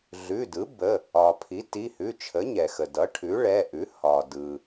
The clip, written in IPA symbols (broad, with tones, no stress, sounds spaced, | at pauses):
ɮ ʉ˩˧˩ d ɯ˩˥ b ə˩˧˩ | ɒ˩ pʰ i˩˥ t i˩˧˩ h ʉ˩˧˩ t͡ʃʰ ə˩˥ ɲ ɛ˩ x ə˩ d ʌ˩˥ ʈʰ ʉ˩˥ ɭ ɛ˩˧˩ ʔ ʉ˩˥ h ɒ˩ d ɯ˩